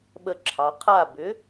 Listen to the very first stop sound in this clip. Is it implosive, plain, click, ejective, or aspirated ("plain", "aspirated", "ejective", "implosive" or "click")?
implosive